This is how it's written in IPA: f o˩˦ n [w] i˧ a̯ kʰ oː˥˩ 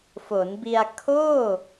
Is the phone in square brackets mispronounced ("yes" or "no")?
yes